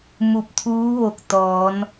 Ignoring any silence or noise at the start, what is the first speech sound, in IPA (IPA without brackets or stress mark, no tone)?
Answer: m